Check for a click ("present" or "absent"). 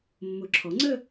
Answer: present